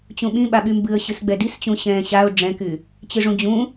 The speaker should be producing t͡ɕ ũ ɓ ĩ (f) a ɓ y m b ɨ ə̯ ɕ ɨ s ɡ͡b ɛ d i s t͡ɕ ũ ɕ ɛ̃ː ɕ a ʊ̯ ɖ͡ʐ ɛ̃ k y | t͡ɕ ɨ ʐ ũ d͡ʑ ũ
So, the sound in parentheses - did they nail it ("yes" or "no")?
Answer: no